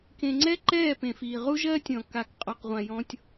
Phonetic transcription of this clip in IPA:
k ẽ˨ ŋ͡ǀ ɛ˦ ǃ ɛː˦˨ p ẽ˨ f iː˨ ʁ u˦ ʒ ɜː˦ tʲ ɔ̃˨ k a˨ k qʼ ɔ˨ q ʁʷ ã˨ j ɔ̃˦ tʲ

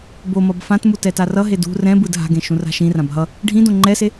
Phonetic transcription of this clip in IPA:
b o m ʌ b f ã t m u t ɛ t a r ʌ ɦ e d ṳ r ɛ̃ b ɯ d ɦ a̤ ɡ ẽ ʃ ũ r a̤ ʃ ĩ r ã b ɦ ʌ | ɖʱ ĩ d õ ŋ͡ǃ ɛ s e

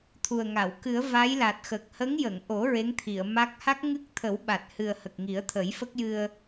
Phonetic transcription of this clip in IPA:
t̪ʰ u˨˩ ə̯ ŋ a˨˩˨ w k ɨ˨˩˦ ə̯ v a˧˥ j l a˨˩ t̚ x əː˨˩ k̚ h ə˧˥ ŋ j ə˨˩˨ ŋ ʔ o˨˩˦ ɹ e˧˥ ŋ t̪ʰ i˨˩˨ ə̯ m a˦˥ k̚ h a˦˥ k̚ ŋ ɨ˦˥ k̚ t̪ʰ ə˨˩˦ w ɓ a˨˩ t̚ h ɨ˨˩ ə̯ h ə˨˩ k̚ ŋ i˨˩˦ ə̯ t̪ʰ ə˨˩˦ j f ə˦˥ k̚ j ɨ˧ ə̯

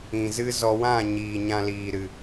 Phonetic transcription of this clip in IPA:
ĩ˨ z ɨ˦ z ɔ˧ w ã˦˨ ɲ iː˨ ɲ ã˧ l iː˨ ɾ ɨ˨

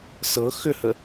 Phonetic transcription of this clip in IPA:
s ɤ x ʏ h ə

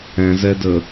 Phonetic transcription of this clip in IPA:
ɛ̃ z ɛ d ə

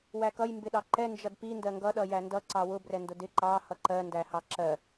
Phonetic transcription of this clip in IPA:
w æ k ʌ j m b ɪ ɗ ɑ ǃ ɛ n d͡ʒ ʌ d p i n d ɜ ŋ ɡ ʌ ɗ ʌ j æ n d ʌ ǀ ɑ w ʊ b r ɛ n d ʊ d ɪ ǃ ɑ h ʌ ǃ ɜ n d æ h ɑ ǁ ɜ

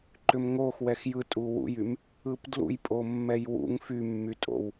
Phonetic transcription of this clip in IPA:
ǃ ʏ m ŋ o x w ɛ x j ɯ tʼ u w ṵ j y m | ɯ p d l ṵ j pʼ o mː ɛ j w ṵ ŋ f y mː y tʼ o̰ w

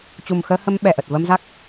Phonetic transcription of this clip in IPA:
t͡ɕ u˨˩ m x əː˧ h ə˧ m ɓ ɛ˧˩ ʔ ə˨˩ t̚ v ə˧ m z a˦˥ k̚

